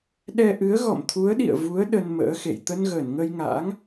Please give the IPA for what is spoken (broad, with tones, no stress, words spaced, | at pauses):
ɗɛ˧ʔɨ˨˦ə̯ ɣɔ̰˧˨mt̪ʰu˨˦ə̯ɗḭ˧˨ə̯ vu˨˦ə̯ ɗə˧nmə̰ː˧˥xḛ˧˨j t̪ə˧nɣəː˧˩nŋə˧jŋa̰ː˧˥ŋ